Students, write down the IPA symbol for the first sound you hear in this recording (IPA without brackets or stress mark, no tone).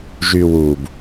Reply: ʒ